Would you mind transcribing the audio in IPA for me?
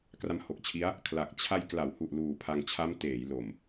k r a˦˥ m h o˨˩ k̚ t͡ɕʰ i˦˥ a̯ | kʰ l a˨˩ k̚ t͡ɕʰ a˧ j k l a˩˦ w h u˨˩ ʔ l uː˨˩ pʰ a˧ ŋ t͡ɕʰ a˦˥ m t eː˩˦ j l o˨˩ m

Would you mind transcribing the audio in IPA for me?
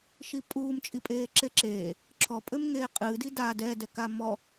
ʃ i pʼ uː m t͡ʃʼ i pʼ eː ǁ e ǁ eː | ǁʰ ɔ pʼ ɘ m ŋ eː qʼ ɨː d i d a d ɛ d ɛ k a m ɔ

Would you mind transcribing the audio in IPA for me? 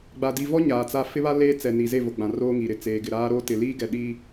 ɡ͡b a˨ d i˨ v ɔ˦ ɲ aː˨ t͡s a˦ f ɪ˦ β a˦ l eː˦ t͡s ɛ˨ n i˨ z e˦˨ v o˨ ɡ͡b ã˨ r oː˦ ŋ i˨ ɾ ɪ˨ t͡s eː˨ ɡ ɪ˨ ɾ aː˦ ɾ oː˦ t ɪ˨ l iː˦ ɡ ɛ˨ ɗ iː˦

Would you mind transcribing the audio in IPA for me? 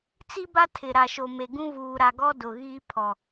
t͡s i˦ b a˦ tʰ ɪ˨ ɾ a˨ ʃ o˨ m e˨ ɡ ũ˦ v uː˨ ɾ a˨ ɡ ɔ˦ d ʊ˨ ɣ iː˦ pʰ ɔ˨

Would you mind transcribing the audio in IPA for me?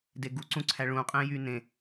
d e ɡ u ǀ ũ ǀʰ æ ɭ ũ qʼ ẽ j y n ẽ

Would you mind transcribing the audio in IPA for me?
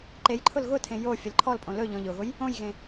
ǃ e j ǃʰ ʊ l ɣ ʊ tʰ ẽ j o fʲ ə l ǃʰ ɔ l pʼ õ l ɵ ʎ ɔ̃ ʎ ʊ ɣ ʊ j | õ j ɣ ẽ

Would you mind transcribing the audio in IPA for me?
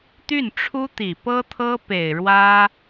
t̪ y˥˩ n ʈ͡ʂʰ u˥ t̪ i˨˩ p ɤ˥ t̪ʰ ɤ˥ p e˨˩ ɪ̯ ɻ w ä˥

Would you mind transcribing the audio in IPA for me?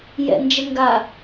j ɛ̰ n d͡ʒ ə ŋ ɡ a

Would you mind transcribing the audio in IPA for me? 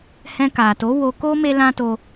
h ɛ̃˧ k a˨ t o˨˦ w o˧ k o˦ m e˦ l ã˦ t o˧

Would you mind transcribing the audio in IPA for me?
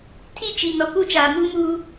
tʰ i˦ t͡ʃ i˨ n ɔ˨ k u˦ t͡ʃ aː˨ m uː˦ m uː˦

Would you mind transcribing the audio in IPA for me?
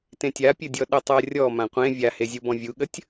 t ẽ tʲ a pʲ ɘ dʲ ɔ ɗ ə tˤ ɜ rʲ ɔ m ã qʷ ẽ vʲ a h e zʲ u b ɔ̃ vʲ u ɠ ə tʲ

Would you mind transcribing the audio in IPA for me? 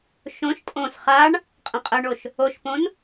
ʃ õ ʃ tʼ õ s χ a ɳ | qʼ ə̃ qʼ ə ɳ o ʃ | o ʃ p õ n

